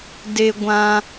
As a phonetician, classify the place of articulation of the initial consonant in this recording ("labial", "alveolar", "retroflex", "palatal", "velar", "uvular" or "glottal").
alveolar